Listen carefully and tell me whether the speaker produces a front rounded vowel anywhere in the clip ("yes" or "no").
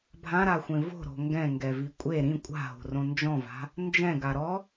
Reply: no